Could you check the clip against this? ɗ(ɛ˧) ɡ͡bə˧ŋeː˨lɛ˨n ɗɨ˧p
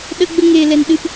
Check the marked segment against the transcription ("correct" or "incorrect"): incorrect